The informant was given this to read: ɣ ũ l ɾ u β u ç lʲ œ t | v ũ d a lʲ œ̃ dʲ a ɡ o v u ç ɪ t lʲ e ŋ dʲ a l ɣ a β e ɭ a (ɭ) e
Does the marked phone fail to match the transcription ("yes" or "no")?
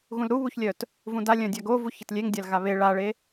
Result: no